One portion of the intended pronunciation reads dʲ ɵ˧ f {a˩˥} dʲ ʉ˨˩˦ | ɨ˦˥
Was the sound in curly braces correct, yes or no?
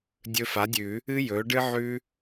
yes